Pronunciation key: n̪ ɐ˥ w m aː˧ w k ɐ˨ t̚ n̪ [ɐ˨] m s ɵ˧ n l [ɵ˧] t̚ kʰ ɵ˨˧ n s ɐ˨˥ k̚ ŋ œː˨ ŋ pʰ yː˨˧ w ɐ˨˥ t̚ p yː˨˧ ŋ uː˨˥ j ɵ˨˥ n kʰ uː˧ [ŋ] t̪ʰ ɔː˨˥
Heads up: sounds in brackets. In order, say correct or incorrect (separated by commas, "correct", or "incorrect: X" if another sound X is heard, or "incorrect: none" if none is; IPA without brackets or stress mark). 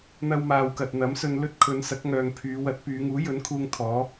incorrect: ɐ˨˥, incorrect: ɵ˥, correct